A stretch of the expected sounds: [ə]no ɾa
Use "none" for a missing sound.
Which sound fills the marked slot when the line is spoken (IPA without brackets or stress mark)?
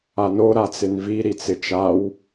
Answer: a